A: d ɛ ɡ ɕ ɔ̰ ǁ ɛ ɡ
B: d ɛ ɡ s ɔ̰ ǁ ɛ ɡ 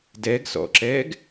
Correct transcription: B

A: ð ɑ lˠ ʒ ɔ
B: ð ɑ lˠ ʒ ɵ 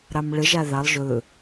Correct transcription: B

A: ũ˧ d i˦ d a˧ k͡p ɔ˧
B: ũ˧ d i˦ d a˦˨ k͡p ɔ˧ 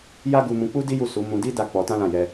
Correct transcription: B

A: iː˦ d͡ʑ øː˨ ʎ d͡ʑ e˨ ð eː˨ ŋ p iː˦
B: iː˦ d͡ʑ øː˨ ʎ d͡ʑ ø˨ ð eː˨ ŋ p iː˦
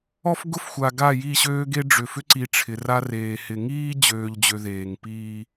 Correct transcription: B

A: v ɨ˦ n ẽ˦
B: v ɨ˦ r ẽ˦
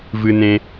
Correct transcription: A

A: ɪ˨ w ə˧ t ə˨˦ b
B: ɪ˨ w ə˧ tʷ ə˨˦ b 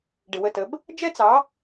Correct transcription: A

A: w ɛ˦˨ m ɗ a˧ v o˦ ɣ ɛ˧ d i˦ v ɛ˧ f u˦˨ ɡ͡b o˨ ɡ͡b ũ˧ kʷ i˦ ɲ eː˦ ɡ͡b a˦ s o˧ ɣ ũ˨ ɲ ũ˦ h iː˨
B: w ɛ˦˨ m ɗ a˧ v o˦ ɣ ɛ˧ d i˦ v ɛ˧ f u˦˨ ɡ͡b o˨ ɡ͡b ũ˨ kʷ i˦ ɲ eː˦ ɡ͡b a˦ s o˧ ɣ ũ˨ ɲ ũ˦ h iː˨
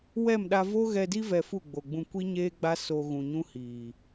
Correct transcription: A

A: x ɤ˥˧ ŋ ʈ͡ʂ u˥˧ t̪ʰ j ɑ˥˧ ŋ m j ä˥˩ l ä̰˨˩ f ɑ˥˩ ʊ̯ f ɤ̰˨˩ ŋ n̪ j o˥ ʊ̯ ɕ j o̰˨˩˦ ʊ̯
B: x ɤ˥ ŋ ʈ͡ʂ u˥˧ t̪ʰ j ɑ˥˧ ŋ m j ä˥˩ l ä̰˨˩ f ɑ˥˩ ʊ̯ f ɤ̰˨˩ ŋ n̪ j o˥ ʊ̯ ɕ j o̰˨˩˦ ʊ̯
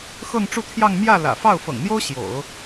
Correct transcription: A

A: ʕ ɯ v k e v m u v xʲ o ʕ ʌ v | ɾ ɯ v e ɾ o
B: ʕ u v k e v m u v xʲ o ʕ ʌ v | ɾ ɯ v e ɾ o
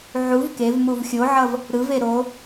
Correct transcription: B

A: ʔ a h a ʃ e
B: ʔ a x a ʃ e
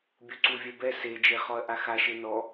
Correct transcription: B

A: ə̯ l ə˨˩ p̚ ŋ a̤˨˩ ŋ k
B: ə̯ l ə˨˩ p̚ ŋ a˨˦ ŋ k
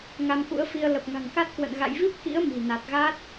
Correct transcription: A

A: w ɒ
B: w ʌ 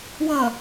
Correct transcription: B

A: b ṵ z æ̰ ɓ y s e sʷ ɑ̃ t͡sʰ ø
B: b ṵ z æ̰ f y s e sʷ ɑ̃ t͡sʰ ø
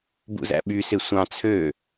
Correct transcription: A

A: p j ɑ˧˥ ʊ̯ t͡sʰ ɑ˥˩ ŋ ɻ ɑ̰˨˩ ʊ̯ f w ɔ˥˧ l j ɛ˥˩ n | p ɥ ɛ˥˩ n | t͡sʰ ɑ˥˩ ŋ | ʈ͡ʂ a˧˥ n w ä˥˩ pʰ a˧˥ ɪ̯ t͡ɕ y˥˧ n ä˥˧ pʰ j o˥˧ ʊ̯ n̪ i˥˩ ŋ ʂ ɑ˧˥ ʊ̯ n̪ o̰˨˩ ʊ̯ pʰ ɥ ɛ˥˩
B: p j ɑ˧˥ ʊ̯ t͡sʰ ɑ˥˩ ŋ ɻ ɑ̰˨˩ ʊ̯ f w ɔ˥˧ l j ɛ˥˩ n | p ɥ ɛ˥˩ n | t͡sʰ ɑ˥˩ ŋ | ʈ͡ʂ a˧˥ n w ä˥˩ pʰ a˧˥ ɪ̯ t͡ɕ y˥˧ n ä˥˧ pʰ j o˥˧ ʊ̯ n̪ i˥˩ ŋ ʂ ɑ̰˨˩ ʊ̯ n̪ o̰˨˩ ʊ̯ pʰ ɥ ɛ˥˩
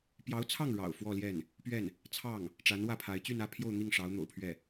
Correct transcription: A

